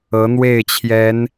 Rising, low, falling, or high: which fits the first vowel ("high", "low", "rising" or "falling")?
rising